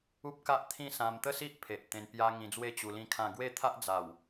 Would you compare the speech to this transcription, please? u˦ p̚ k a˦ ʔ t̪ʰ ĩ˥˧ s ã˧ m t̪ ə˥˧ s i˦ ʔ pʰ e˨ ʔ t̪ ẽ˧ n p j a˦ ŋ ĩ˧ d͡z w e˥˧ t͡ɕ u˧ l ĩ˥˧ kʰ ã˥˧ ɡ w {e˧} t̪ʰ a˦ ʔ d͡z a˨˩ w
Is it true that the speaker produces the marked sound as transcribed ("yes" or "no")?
no